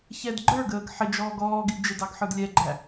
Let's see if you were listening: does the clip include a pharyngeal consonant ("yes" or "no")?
yes